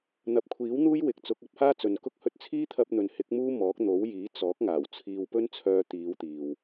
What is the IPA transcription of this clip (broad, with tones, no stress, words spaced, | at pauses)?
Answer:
n̪ɐ˨p̚kʷʰiː˨˥w n̪uː˥j wɪ˨k̚ t͡sʊ˨˥k̚ɐ˥p̚haː˥ t͡sɵ˨nkʊ˥k̚ hɵ˧t̚t͡sʰiː˥t̪ʰɐ˧p̚ n̪ɵ˨nhɪ˨˥k̚ muː˥mɔː˨˥k̚ n̪o˨˥wjiː˨˥t͡sɔː˨˥k̚ ŋaː˨˩wt͡sʰiː˧wpɵ˥nt͡sʰœː˧ t̪iː˨˧w t̪iː˨w